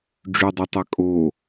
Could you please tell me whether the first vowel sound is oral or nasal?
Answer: oral